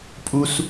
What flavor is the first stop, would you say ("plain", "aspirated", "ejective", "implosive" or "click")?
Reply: ejective